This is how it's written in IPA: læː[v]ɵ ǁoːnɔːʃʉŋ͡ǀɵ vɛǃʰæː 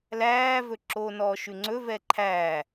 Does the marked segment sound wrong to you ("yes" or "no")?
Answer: no